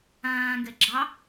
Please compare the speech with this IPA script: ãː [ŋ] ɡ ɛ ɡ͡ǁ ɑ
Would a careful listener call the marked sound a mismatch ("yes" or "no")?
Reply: no